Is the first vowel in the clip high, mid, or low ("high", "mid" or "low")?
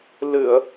high